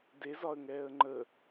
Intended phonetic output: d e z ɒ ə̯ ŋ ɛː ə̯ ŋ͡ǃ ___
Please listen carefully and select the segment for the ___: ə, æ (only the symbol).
ə